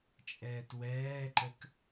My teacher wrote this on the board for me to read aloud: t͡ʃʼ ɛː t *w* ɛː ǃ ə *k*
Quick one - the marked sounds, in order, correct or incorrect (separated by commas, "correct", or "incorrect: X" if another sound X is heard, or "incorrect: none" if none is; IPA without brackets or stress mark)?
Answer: correct, correct